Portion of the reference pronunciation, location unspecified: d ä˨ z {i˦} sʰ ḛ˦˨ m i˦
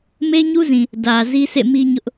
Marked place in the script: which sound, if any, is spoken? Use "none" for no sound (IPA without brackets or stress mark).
i˦